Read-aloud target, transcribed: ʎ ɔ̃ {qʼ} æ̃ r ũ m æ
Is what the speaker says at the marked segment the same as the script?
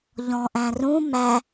no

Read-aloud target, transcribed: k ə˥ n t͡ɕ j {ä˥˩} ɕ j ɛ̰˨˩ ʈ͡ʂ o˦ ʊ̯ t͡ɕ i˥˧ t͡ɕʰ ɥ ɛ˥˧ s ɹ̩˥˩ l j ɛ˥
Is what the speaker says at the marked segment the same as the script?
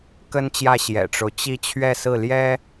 yes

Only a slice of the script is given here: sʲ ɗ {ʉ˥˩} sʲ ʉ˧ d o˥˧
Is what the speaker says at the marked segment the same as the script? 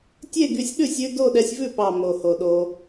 yes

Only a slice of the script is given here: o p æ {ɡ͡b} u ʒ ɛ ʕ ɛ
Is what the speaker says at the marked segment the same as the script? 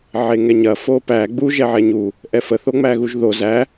yes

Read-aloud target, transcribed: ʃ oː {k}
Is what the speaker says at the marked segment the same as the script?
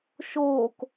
yes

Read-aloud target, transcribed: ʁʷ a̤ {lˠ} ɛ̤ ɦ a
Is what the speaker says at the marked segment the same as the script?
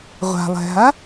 yes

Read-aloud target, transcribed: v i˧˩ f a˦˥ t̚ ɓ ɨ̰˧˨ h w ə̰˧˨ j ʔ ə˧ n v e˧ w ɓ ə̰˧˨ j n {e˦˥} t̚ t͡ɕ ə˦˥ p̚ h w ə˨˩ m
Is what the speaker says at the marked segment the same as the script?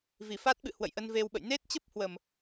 yes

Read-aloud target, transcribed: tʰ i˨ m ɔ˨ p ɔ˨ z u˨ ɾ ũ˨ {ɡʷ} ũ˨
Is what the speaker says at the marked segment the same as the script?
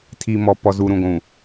yes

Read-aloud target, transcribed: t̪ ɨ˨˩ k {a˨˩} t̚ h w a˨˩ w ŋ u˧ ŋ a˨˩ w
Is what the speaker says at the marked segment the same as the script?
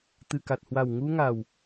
yes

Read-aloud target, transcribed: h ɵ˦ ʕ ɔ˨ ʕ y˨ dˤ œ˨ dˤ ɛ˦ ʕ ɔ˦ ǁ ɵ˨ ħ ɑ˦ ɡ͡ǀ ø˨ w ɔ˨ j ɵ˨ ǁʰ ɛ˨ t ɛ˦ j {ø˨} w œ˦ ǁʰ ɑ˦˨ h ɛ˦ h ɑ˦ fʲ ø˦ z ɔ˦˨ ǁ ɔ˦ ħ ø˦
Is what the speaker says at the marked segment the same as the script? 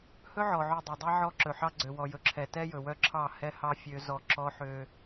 no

